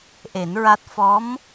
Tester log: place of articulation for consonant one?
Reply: glottal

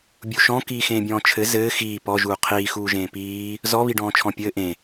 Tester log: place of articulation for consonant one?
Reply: labial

